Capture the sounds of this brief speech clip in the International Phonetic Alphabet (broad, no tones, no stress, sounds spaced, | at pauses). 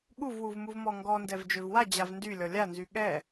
ɠ u v w u v m u v m ɔ ŋ ɡ ɔ n d ɛ v d͡ʒ ø v w a d͡ʑ a v n d y lʲ ɔ lʲ a n z y ɠ ɛ